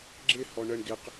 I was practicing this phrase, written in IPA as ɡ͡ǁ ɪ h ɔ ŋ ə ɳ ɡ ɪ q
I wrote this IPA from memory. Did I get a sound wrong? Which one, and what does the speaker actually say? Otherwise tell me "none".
ŋ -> ɳ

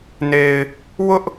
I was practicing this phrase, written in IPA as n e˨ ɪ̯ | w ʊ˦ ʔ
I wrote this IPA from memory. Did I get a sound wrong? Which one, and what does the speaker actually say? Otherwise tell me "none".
none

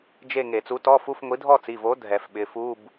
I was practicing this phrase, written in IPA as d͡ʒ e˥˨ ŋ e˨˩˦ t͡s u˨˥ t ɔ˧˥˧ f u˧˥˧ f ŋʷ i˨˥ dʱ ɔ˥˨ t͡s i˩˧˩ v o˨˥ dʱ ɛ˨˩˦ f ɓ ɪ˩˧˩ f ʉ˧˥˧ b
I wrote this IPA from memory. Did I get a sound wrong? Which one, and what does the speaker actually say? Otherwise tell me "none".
ʉ˧˥˧ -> u˧˥˧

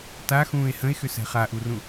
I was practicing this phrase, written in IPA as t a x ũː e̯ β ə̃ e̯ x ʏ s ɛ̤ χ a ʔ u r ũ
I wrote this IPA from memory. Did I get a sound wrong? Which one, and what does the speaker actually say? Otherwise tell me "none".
β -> h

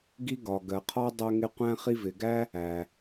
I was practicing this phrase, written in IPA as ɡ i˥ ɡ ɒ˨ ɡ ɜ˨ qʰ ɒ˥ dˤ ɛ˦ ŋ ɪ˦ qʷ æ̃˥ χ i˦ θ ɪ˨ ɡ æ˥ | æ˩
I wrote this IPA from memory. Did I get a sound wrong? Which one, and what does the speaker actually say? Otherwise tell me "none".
θ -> v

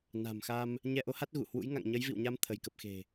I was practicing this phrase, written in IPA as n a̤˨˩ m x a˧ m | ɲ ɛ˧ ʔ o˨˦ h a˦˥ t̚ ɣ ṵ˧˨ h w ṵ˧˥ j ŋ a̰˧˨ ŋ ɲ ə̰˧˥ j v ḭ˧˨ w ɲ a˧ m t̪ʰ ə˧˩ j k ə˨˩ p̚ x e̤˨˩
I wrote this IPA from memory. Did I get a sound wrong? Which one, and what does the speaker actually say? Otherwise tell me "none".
ə̰˧˥ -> ə˨˦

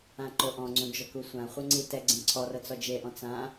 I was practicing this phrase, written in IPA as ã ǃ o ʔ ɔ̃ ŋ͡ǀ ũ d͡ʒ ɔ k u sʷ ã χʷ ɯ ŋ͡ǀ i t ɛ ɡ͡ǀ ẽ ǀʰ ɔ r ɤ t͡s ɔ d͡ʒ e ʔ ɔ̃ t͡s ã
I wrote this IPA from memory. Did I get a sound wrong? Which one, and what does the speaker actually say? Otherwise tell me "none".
none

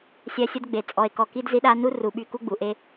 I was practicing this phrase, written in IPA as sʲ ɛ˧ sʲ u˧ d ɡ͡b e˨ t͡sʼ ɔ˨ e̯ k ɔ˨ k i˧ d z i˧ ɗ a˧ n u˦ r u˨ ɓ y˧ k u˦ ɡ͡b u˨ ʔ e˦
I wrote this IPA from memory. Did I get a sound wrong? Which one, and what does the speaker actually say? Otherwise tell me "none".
none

